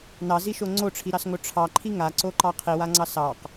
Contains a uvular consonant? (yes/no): yes